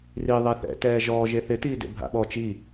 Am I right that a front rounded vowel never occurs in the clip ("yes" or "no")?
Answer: yes